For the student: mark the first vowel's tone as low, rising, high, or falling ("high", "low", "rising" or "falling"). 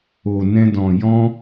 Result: low